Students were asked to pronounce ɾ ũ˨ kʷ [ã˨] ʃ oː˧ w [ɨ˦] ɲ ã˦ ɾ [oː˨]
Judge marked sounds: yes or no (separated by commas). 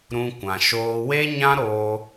yes, no, no